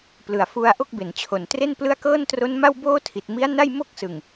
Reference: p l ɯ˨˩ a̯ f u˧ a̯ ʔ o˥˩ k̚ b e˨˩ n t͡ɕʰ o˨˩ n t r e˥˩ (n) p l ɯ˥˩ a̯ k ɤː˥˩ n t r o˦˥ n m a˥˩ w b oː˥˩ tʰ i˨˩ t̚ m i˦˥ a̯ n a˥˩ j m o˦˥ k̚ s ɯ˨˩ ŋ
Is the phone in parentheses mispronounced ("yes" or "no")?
no